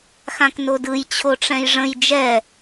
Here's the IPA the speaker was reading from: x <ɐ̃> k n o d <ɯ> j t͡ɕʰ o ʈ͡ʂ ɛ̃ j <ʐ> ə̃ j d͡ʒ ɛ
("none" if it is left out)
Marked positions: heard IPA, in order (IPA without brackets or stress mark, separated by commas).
ã, ɯ, ʐ